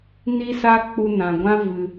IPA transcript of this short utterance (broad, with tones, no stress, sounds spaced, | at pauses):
n i˦ s a˦ k͡p u˧ n ã˨ ɡʷ ã˦ v ɨ˧